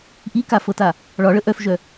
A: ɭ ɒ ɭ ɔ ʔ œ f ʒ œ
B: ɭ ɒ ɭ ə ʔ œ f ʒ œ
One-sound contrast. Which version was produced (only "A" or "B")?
B